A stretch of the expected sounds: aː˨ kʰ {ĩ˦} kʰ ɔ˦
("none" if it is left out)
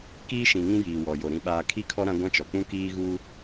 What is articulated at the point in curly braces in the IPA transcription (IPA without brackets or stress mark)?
i˦